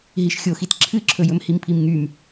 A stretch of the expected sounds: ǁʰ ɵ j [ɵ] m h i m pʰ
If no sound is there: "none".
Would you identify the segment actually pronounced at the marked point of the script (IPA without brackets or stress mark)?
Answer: ɵ